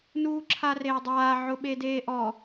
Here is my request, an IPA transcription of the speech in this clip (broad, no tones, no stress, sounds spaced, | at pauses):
n uː ǁʰ a r eː dˤ aː ʕ ʊ ɓ e d eː ʔ ɔ